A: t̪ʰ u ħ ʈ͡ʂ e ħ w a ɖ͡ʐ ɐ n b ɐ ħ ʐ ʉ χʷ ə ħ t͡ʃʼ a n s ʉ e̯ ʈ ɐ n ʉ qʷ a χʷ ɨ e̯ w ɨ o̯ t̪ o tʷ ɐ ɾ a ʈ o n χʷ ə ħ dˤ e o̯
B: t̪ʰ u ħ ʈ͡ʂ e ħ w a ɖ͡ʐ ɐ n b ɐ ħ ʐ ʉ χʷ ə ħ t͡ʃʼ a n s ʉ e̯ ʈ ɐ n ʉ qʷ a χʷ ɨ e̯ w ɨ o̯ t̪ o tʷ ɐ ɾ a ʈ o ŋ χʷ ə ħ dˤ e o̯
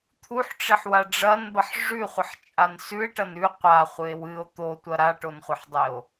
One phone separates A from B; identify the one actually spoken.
A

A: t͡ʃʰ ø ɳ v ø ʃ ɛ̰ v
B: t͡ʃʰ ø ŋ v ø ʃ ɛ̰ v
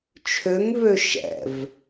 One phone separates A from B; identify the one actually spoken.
B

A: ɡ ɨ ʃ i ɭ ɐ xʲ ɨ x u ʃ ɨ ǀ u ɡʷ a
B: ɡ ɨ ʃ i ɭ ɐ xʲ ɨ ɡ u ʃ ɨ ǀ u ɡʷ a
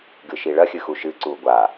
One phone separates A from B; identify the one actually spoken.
A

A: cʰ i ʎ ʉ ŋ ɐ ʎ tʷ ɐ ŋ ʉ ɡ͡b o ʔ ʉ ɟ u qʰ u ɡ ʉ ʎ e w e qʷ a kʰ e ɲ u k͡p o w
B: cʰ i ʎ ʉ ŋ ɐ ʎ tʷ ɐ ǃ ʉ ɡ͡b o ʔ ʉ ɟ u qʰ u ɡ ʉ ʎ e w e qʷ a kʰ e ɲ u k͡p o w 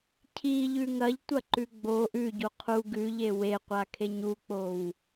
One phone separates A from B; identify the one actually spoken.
B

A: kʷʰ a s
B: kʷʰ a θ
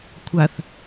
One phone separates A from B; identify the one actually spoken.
B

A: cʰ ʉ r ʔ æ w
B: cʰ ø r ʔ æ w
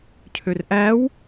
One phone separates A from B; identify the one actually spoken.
B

